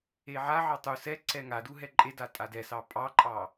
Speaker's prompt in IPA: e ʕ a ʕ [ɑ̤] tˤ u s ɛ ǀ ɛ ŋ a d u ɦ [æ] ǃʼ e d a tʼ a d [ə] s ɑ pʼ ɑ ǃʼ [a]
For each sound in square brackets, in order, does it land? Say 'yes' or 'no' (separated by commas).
no, no, no, no